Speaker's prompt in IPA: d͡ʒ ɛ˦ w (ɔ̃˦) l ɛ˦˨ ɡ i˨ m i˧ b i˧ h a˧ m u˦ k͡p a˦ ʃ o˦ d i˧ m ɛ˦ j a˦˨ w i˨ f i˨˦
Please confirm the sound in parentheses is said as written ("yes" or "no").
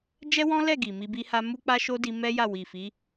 yes